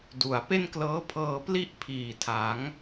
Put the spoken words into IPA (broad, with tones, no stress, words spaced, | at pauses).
du˩˦a̯ pe˥˩nklɤː˦˥pʰɤː˧ pli˥˩ʔpʰiː˨˩ tʰa˩˦ŋ